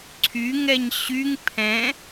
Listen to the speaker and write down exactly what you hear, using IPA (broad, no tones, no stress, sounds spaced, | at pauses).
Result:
ǀʰ y ŋ ɛ ɲ ɕ y ŋ pʰ ɛ̃